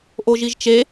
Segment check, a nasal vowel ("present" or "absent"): absent